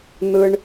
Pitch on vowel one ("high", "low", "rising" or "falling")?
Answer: high